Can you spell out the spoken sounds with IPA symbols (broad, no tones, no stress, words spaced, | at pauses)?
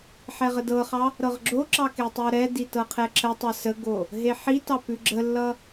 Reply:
ħɛʁədɤχɑ | ɾɤʁɡ͡ǁoǁɑ ketˤoɾɛdi tɤqʰɛǁətˤʌ səɡo | ɦeħitɑ pʉɡ͡ǁəlːʌ